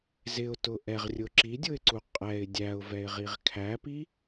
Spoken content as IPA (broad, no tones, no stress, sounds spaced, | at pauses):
z ɪ ʊ̯ t ʊ ʔ ɛ ʁ rʲ ʊ ǁ i dʲ ʊ ɪ̯ ǀ u qʼ ɛ ɪ̯ dʲ æ ʊ̯ v ɛ ɪ̯ ʁ i ʁ kʰ æ p i